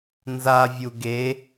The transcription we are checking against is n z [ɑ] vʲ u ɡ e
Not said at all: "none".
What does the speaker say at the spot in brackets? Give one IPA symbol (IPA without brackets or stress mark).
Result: a